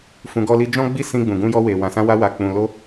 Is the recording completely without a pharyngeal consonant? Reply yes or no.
yes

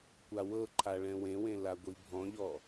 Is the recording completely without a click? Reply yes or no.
no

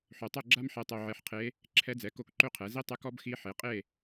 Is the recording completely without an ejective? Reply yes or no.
no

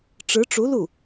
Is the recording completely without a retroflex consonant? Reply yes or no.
no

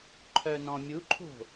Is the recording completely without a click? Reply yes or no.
no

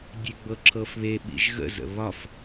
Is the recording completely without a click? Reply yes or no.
no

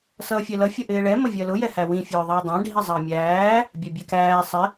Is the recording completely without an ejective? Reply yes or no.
yes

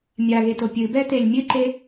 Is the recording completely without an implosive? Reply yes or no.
yes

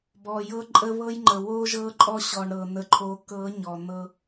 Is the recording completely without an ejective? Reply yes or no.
no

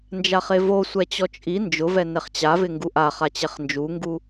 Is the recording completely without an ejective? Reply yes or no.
no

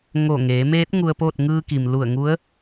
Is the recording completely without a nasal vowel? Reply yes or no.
yes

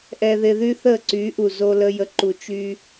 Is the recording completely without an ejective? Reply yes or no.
yes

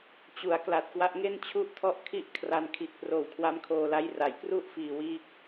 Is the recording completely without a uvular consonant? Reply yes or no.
yes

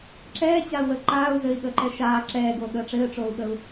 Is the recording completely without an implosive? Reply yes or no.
no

